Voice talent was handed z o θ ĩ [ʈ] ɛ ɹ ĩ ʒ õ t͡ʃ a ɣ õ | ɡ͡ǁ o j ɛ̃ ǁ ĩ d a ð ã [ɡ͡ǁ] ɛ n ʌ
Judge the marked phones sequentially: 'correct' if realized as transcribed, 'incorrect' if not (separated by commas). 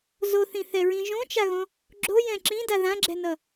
incorrect, correct